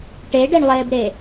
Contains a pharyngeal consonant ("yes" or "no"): no